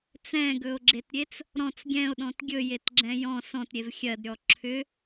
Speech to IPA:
t͡s ɛ̃ ɡ ɵ o̯ ɡ͡ǁ e t ɾʲ e t͡s | ɾ ɔ̃ t͡s ɡʲ ɛ̃ o̯ ɗ ɔ̃ t ɡʲ ɵ j e t ɡ͡ǁ ɛ̃ j ɔ̃ s ɔ̃ t ɾʲ e v xʲ ɜ d ɾʲ ɔ ǁʰ ʏ

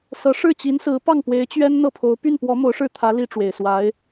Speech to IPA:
s ɤ˧˥ ʂ ɻ̩˥˩ t͡ɕ i˧˥ n s ɹ̩˧˥ p ɑ˥˩ ŋ p w e˧˥ ɪ̯ t͡ɕ ɥ ɛ˥ n n̪ ɤ˥˩ pʰ o˧˥ ʊ̯ p y˥˩ n p w ɔ˧˥ m o˧˥ ʊ̯ ʂ ɻ̩˥˩ t̪ʰ ä˧˥ l i˥ ʈ͡ʂ w e˨˩ ɪ̯ s w a˧˥ ɪ̯

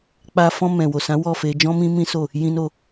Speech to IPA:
k͡p a˧ f ɔ̃˧ m ɛ̃˨ w o˨ s ã˨˦ w ɔ˦˨ f e˧ d͡ʒ ɔ̃˦ m ĩ˦ m ĩ˦ s o˦˨ | j ĩ˧ n o˧

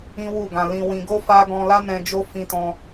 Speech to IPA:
ĩ˦ w u˦˨ ɡ ã˧ l ĩ˧ w ĩ˧ ɡ o˦ f a˦ ɡ ɔ̃˧ l a˦ n ɛ̃˧ d͡ʒ o˦ f ĩ˦ t ɔ̃˦

